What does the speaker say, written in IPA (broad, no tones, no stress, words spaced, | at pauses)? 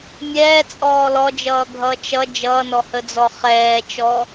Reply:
mʲɛːt͡sʼɔː lɔd͡ʒʌːɡʱʌː t͡ʃʌ d͡ʒʌːnɔhəd͡zɔ χɛːt͡ʃɔ